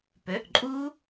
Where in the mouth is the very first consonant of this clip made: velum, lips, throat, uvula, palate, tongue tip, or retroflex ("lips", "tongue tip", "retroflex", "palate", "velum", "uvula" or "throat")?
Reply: lips